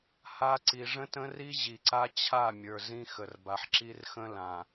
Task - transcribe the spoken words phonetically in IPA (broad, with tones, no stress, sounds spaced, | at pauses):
h a˦ ǀ i˨ ʐ ə̃˦ t ə̃˦ r i˦ ʑ i˨ ǀ a˦ t͡ɕʰ a˦˨ mʲ ə˞˨ z ĩ˦ x ə˨ r b a˨ ħ ǁ i˦ r x ə̃˦ l ã˨